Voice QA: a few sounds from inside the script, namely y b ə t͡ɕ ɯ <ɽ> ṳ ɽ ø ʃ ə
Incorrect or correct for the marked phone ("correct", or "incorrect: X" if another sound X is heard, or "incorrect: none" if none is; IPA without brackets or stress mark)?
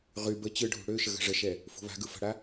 incorrect: ɖʱ